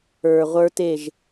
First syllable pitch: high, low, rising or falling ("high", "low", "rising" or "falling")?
low